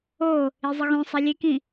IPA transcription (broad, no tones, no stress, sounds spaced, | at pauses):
o | i zˤ ɨ ɣ õ sˤ a lʲ e k ĩ